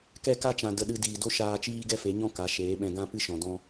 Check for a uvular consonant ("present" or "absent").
absent